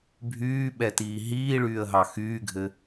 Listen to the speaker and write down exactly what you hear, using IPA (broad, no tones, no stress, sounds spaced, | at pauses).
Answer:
bʱ yː ɓ ɛ t iː ɦ iː ɭ yː ə̯ ɦ ɑ x yː ɡʱ ɘ